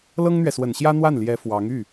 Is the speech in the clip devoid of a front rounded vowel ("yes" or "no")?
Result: no